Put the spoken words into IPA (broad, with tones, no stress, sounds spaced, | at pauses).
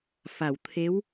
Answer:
f a˨˩˨ w t̪ʰ e˧˥ w